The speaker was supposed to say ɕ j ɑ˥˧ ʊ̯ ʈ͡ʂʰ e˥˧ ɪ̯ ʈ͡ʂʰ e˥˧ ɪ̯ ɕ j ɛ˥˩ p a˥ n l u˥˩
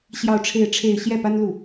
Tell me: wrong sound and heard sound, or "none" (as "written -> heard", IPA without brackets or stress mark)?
none